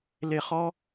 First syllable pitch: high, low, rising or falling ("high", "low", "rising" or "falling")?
low